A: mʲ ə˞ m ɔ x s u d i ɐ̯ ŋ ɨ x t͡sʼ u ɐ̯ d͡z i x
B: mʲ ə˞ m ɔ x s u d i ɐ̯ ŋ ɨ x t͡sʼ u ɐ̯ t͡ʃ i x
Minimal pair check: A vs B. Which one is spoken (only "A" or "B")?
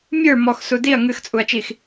B